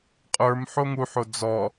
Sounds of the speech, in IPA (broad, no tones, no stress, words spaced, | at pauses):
qʼə˞m ħoŋuħo d͡zɔ